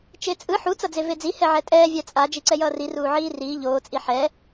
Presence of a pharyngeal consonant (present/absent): present